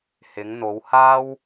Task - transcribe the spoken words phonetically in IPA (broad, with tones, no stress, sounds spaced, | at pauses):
h ɪ˨˧ ŋ n̪ o˨˧ w h aː˥ w